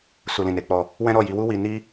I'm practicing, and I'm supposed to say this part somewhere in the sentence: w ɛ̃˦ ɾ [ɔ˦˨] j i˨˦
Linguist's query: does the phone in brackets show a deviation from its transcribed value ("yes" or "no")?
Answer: no